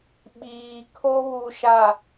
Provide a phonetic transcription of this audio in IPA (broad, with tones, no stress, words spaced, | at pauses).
ɓiː˨kʰo˦βu˨ʃa˨